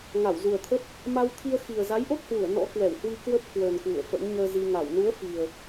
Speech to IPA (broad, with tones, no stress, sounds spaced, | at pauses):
ŋ a˧˩ w z u˨˩ ə̯ t̪ʰ ə˦˥ p̚ | m a˧ w t̪ʰ i˧ ə̯ x i˨˩ ə̯ z a˨˦ j ʔ o˦˥ t̚ h w u˧˩ ə̯ n ɔ̰˧˥ k w ɛ˧˩ w h w i˧ k w ə˦˥ p̚ k w əː˨˩ n k w ṵ˧˨ ə̯ f ə̰˧˥ n ɲ əː˧ z i˧ ŋ a˧˩ w n u˨˦ ə̯ f i˨˩ ə̯